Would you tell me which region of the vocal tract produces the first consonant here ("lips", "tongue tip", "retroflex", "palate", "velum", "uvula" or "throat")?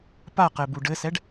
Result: lips